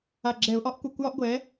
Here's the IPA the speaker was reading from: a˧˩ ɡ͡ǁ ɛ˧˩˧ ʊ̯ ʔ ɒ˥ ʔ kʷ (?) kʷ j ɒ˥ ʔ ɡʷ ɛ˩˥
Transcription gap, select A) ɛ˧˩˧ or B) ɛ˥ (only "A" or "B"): A